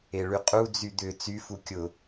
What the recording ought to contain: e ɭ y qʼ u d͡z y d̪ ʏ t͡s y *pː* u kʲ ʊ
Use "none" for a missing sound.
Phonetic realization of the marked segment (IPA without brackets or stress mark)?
f